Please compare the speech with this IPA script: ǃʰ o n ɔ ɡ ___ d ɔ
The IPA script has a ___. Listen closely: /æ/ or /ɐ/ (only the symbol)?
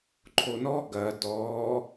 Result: ɐ